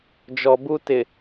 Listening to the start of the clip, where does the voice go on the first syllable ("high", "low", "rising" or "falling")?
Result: low